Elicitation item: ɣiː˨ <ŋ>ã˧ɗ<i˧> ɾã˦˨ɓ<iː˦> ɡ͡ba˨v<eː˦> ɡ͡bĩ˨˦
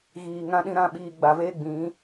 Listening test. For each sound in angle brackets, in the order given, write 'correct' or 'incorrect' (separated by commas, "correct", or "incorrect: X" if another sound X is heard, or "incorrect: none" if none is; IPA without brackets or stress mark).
correct, incorrect: ĩ˧, incorrect: iː˨, correct